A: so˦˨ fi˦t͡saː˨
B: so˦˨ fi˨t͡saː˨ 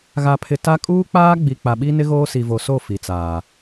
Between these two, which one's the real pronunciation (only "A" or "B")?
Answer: B